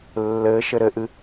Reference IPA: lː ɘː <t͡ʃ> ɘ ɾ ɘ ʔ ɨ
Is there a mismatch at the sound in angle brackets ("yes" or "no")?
yes